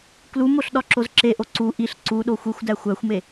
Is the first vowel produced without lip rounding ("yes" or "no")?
no